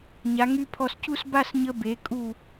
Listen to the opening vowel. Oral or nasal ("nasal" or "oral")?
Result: oral